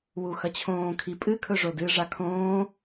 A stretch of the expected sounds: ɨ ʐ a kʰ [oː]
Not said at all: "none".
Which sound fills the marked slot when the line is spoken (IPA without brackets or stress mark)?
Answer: õː